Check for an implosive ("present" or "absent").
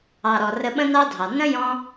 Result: present